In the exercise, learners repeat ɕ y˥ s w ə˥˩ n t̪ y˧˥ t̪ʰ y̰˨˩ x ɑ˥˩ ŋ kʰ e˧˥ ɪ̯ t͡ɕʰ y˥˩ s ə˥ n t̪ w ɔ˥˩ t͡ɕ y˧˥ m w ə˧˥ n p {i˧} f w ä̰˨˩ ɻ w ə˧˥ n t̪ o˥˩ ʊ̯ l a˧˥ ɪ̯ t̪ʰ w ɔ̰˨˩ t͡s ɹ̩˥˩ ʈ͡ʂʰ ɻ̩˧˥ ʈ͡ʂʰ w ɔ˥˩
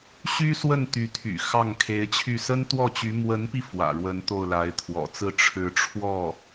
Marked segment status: correct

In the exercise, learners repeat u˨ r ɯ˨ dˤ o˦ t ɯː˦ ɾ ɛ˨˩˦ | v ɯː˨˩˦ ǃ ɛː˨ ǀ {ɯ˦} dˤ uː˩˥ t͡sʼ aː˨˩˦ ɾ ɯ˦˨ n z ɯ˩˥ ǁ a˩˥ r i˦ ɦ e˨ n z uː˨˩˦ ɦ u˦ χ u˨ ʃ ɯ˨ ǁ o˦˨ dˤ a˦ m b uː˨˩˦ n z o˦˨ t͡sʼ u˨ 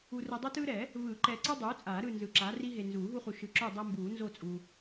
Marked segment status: correct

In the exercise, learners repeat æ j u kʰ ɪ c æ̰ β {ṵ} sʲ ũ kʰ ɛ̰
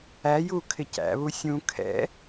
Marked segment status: incorrect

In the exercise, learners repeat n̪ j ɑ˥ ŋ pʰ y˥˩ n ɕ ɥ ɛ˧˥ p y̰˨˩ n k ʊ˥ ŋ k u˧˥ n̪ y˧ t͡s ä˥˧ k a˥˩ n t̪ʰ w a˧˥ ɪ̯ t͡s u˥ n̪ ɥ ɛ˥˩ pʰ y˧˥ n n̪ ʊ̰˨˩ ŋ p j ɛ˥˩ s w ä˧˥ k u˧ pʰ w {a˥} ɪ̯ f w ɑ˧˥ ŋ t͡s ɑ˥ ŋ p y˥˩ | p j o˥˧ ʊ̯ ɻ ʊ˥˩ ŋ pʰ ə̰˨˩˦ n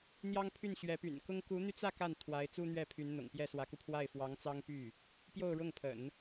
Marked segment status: incorrect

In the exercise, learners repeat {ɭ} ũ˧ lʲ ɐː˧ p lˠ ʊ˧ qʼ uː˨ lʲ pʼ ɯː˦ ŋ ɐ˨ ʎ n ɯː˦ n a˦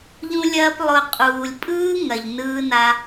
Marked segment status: incorrect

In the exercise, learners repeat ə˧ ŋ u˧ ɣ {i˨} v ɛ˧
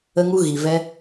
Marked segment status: correct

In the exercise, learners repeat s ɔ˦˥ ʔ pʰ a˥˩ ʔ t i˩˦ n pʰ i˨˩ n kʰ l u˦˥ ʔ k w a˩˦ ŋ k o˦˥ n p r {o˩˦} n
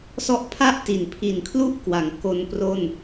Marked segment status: incorrect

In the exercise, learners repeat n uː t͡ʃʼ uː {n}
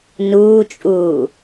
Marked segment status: incorrect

